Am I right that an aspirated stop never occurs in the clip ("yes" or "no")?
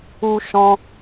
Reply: yes